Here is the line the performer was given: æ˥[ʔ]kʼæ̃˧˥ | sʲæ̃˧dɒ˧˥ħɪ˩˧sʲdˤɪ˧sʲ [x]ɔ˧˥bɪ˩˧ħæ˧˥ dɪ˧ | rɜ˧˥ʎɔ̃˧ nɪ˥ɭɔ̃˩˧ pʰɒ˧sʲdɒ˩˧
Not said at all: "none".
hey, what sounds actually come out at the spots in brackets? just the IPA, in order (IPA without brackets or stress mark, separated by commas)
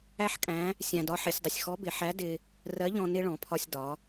ħ, x